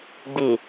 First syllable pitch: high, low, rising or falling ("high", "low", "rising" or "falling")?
low